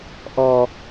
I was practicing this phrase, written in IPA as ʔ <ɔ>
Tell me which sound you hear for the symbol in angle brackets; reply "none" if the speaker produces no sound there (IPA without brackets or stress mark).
ɔ